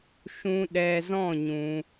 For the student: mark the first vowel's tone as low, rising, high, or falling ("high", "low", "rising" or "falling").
high